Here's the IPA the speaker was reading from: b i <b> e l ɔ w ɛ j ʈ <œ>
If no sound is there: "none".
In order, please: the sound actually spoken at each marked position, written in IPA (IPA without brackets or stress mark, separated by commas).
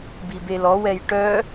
b, œ